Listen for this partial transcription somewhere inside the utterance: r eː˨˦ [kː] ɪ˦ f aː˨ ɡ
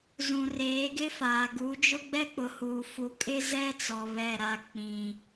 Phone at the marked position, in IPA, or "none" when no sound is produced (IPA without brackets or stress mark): ɡ